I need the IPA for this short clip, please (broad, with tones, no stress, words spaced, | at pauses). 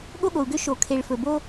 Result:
ɠo˥ɠo˩u̯ɡø˥ ʃo˩kʰe˩ɭ fɵ˩ bo˥